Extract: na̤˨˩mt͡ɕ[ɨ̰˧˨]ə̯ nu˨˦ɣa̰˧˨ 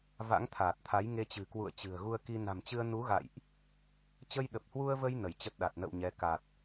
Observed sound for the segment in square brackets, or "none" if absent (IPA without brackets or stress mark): ɨ˧